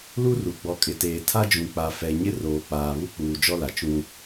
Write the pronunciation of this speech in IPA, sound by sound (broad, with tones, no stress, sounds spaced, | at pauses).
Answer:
l u˦ r u˨ ɡ͡b ɔ˨ kʼ ɪ˨ t eː˨ tʰ a˦ d͡ʒ ũ˨ k͡p a˨ f ɛ˨ ɲ ɪ˦ r oː˨ k͡p aː˨ β u˦ k͡p uː˨ d͡ʒ ɔ˦ l a˨ t͡ʃ ũ˦